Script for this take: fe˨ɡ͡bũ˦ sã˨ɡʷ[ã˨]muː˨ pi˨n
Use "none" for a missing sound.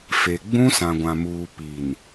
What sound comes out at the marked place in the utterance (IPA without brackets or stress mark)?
ã˨